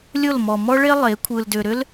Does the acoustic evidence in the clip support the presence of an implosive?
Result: no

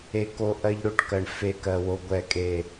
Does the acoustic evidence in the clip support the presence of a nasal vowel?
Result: no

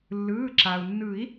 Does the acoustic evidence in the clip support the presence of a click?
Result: yes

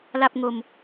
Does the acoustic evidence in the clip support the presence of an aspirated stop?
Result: no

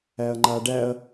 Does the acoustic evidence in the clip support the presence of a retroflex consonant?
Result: yes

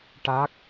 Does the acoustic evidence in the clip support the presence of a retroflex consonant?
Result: yes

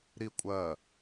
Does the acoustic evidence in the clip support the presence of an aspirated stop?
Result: no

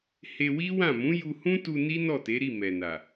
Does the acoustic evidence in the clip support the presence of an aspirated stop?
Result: no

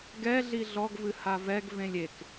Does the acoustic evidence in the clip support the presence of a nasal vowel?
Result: yes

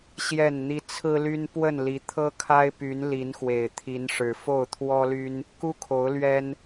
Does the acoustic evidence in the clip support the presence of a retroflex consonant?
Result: yes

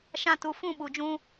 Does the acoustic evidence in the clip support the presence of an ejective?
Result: no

